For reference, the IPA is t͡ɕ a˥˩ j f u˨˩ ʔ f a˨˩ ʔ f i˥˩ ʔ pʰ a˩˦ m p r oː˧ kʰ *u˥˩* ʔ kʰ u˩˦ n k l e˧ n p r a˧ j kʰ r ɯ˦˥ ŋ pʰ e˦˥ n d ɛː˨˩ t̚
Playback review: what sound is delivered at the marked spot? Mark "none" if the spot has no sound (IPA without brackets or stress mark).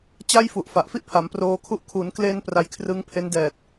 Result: u˦˥